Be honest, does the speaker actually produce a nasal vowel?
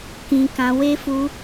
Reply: yes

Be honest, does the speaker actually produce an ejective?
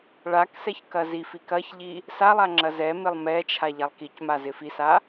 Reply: no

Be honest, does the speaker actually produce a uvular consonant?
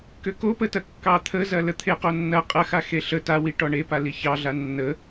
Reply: yes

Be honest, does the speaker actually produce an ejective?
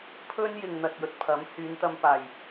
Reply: no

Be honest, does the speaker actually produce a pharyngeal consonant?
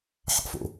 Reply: yes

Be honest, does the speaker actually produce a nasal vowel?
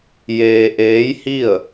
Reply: no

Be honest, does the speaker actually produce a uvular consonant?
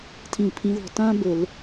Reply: no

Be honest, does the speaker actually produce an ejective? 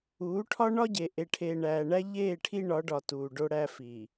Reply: no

